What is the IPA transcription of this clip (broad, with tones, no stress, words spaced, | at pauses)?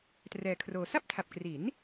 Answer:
trɛː˧kʰroː˧ sa˥˩p̚tʰa˨˩p̚kri˩˦n